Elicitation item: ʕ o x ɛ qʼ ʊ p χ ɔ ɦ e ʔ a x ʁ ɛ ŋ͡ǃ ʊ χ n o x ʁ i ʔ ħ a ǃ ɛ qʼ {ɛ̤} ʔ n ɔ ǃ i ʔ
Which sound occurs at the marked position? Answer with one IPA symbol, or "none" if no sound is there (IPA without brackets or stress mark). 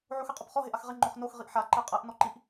ɛ